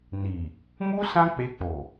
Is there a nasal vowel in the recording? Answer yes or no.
yes